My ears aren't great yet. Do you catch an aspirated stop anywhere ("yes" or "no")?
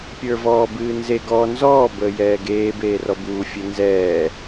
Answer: no